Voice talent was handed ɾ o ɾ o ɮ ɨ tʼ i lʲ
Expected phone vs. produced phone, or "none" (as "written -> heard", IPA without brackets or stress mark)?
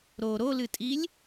ɮ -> l